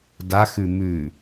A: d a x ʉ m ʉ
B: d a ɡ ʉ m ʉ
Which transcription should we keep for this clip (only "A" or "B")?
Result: A